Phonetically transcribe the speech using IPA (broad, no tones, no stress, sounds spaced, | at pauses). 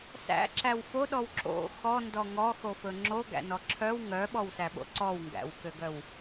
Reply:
s æ̰ ǁ æ w f o ɗ ɔ w ǁ o̰ x ɔ n d ɔ ŋ ɔ x o f ɵ ŋ͡ǁ o ɡ æ̰ n ɔ ǁʰ œ w ŋ œ ɓ ɔ w s æ ɓ o̰ ǀ ɔ w ŋ ɡ æ̰ w k ø ɡ œ w